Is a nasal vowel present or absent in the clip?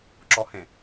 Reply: present